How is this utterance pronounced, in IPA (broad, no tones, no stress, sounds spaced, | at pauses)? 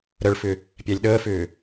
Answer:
ɾ ə ɭ f ʏ | pʲ æ lʲ ɗ əː f ʏː